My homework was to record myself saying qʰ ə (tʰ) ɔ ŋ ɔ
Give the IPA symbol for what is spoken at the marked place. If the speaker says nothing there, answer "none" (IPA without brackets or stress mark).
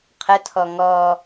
tʰ